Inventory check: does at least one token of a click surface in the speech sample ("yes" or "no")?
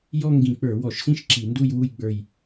yes